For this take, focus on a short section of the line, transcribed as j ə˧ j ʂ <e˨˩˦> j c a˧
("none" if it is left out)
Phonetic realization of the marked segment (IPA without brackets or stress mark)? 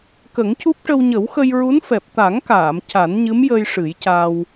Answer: ɨ˨˩˦